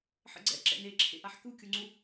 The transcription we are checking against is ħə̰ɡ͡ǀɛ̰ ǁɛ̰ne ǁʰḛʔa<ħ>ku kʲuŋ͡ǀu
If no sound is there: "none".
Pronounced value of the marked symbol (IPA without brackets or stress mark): ħ